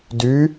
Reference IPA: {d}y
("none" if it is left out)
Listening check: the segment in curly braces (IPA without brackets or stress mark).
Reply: d